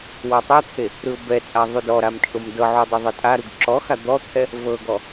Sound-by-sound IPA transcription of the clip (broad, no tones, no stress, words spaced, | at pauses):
wɔtˤɛt̪ʰe | ɾɯʊ̯bɛt͡sʼa ðˤudɔɾam t͡ʃʼomdɤʕu dˤɯðˤɤtʼaɾuɡ ǁɔxa d̪ɔt̪ʰɛ | vɤɡɔ